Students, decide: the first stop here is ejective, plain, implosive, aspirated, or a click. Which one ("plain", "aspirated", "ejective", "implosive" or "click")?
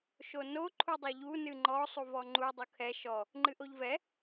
click